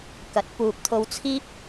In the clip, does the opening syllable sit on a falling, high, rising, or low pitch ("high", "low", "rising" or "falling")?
rising